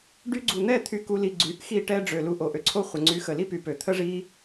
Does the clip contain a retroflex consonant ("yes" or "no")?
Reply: yes